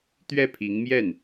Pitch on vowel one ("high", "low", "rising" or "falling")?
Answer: falling